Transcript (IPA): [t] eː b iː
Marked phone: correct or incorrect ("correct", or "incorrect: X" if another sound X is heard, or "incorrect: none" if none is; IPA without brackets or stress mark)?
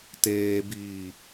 correct